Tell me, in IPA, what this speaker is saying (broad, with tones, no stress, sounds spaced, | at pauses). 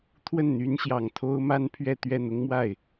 t̪ʰ w ə˥˩ n n̪ y˧˥ n ɕ j ɑ˨˩ ŋ t̪ʰ o˥ ʊ̯ m a˥ n pʰ ɥ ɛ˥˧ t̪ ɥ ɛ˥˩ n̪ ʊ˥ ŋ m w a˥˩ ɪ̯